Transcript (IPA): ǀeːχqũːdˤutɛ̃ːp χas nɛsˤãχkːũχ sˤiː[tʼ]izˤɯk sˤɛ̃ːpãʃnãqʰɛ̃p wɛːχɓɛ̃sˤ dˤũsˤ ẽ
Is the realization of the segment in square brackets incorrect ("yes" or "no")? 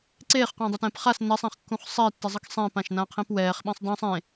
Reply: yes